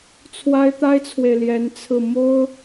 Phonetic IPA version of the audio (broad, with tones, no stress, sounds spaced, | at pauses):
t͡sʰ w a˥ ɪ̯ t̪ a˥ ɪ̯ t͡sʰ w e˨ ɪ̯ l j ɛ˧˥ n t͡sʰ ɹ̩˥˩ m o˥ ʊ̯